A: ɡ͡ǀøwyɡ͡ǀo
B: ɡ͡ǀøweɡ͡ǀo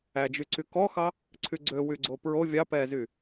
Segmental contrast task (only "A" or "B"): A